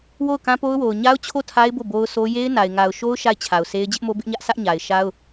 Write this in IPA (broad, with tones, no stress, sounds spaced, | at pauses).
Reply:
w o˦˨ ʊ̯ k ã˦ p o˦ ʊ̯ w o˨ ʊ̯ ɲ a˦ ʊ̯ t͡ɕʰ o˦˨ tʰ a˦ ɪ̯ b o˦˨ b o˦ ʊ̯ s o˦ j e˦ ɪ̯ n a˨ ɪ̯ ŋ a˨ ʊ̯ ʃ o˦ ʊ̯ ʃ a˦˨ ɪ̯ t͡ɕʰ a˨ ʊ̯ s e˦ ɪ̯ d͡ʑ ɪ˦ ʔ m o˦ b ɪ˦ ʔ ɲ ä˦ ʔ sʰ ä˦ ʔ ɲ a˨ ɪ̯ ʃ a˦ ʊ̯